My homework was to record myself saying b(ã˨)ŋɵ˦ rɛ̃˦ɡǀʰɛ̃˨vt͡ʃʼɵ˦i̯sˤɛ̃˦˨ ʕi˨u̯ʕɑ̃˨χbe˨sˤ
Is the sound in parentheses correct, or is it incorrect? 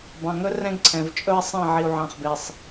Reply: incorrect